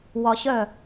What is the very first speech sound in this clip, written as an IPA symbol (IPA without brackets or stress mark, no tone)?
w